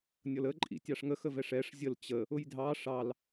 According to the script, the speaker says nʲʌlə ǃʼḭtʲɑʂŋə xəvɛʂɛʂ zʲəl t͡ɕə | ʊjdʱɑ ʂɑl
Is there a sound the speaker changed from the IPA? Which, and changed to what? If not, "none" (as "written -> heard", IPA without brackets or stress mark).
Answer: none